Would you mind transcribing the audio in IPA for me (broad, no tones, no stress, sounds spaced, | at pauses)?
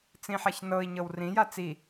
t͡s ĩ ħ a ç n ɤ i̯ ɲ ɤ w r ĩ j a t͡s i